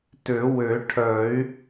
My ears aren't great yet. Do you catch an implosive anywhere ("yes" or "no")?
no